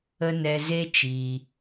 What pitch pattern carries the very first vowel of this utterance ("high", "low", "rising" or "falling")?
high